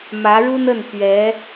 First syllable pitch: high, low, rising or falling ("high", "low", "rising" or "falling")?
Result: rising